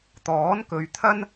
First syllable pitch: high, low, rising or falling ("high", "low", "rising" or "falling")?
rising